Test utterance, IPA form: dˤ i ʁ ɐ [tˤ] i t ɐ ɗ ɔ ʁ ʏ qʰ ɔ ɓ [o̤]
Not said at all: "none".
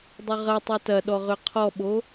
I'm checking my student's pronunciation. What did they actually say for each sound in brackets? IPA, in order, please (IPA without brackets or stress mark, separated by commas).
tˤ, o